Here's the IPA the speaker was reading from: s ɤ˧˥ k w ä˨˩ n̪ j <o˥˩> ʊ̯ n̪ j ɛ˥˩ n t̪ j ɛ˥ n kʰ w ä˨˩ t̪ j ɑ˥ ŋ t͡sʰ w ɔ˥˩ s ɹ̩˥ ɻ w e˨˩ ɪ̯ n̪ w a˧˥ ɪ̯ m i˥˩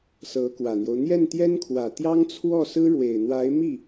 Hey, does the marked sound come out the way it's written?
no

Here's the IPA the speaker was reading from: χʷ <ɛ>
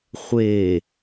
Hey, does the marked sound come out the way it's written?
no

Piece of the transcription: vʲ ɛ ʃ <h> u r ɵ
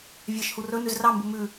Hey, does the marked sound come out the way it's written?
yes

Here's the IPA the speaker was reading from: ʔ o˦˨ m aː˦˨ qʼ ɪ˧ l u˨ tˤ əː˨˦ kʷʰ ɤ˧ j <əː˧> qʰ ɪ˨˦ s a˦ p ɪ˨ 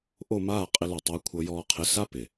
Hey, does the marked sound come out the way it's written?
no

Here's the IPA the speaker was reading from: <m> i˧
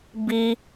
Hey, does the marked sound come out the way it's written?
no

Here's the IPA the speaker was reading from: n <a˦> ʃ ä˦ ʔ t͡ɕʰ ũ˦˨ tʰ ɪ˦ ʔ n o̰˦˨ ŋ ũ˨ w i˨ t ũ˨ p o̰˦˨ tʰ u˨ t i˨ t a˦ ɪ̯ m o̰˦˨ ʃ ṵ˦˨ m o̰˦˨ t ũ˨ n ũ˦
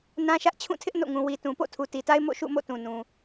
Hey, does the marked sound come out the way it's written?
no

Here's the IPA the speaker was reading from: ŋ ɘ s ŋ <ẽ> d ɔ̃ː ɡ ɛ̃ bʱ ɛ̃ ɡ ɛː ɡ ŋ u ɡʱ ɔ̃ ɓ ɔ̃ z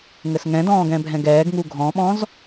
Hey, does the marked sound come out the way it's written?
no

